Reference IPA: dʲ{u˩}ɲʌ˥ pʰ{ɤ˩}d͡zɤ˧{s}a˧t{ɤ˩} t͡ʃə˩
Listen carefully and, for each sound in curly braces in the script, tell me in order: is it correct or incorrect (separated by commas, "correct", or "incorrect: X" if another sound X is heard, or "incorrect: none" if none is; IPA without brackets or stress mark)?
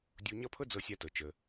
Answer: incorrect: u˧, incorrect: ɤ˥, incorrect: sʲ, correct